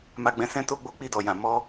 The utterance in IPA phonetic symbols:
m a˧ ɡ͡b ɛ̃˧ s ɛ̃˦ t o˦ ɡ͡b o˦ k͡p i˦˨ d ɔ˨ j ã˨ m ɔ˧

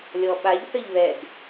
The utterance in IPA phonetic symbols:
lʲ ɔ ɓ a ʎ θ ə ʎ β ɛ ɡ

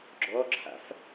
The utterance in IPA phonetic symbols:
ɡ͡ǁ ɔ ǁʰ a̰ f

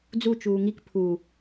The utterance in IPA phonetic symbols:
d͡z u t͡ʃ uː ŋ i k pʰ u

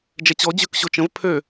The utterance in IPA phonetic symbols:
d͡ʒ ɛ t͡ɕ ɔ d͡ʑ ø k ɕ o t͡ʃ ə̃ v pʰ ø

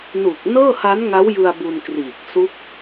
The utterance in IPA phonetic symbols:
n u˨˩ k̚ n ɤː˥˩ h a˦˥ n ŋ a˦˥ w j ɯ˧ a̯ b u˧ n k r iː˨˩ k̚ s u˦˥ k̚

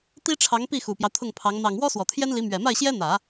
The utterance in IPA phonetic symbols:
t̪ i˥ ʈ͡ʂʰ ɑ˧˥ ŋ p i˥˩ x u˨˩ p j ɑ˦ ʊ̯ t̪ʰ ʊ˥˩ ŋ pʰ ɑ˧˥ ŋ n̪ ɑ˨˩ ŋ w ɔ˥ s w ɔ˨˩ t̪ʰ j ɛ˥ n l i˧˥ m ɥ ɛ˨˩ m a˥˩ ɪ̯ ɕ j ɛ˥ n̪ ä˨˩˦

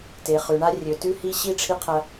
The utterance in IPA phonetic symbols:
t e˨ χ ʉ˨ ɳ a˦ rʲ ɵ˨ t ʉ˦ h i˦ ɕ i˦ ʈ͡ʂʰ i˦ qʰ ɐ˦

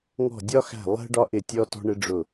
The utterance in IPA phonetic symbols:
ŋ ɔ̤˦˨ dʲ ɒ˥ x æ̤˦˨ lˠ ɛ̤˥ ɖ ɒ˥ ʔ ɪ˦˨ tʲ ɔ˥ t ɔ̤˥ ɳ ɪ˥ ɖ͡ʐ ʊ˦˨

